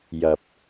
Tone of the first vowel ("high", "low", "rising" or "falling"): low